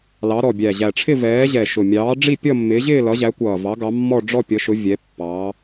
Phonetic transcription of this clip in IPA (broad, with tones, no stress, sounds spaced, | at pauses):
l ɑ˨˦ ɾ ɔ˨˩ bʲ æ˨˩ ʑ æ˨˩ ʈ͡ʂʰ ɪ˥˧ v ɛː˨˦ ʑ ɛ˨˩ ʃ ʊ˨˩ mʲ ɑː˨˦ ɖ͡ʐ i˥˧ pʲ ʌ˥˧ mː ɪː˨˦ ʑ ɪː˥˧ l ʌ˨˦ ʑ æ˨˦ kʷ ʌː˨˩ v ɑ˨˦ ɡ ɑ˨˦ mː ɔ˥˧ ɖ͡ʐ ɔ˥˧ pʲ ʌ˨˦ ʃ ʊ˨˦ vʲ ɛ˨˦ pː ɑː˨˦